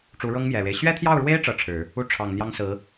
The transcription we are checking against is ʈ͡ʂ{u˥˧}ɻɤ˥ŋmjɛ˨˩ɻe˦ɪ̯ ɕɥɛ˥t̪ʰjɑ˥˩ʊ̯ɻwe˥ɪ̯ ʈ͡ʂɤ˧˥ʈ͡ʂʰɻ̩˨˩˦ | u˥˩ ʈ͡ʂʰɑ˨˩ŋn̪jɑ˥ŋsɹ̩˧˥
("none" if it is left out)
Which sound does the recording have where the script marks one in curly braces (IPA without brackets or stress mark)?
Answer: u˧˥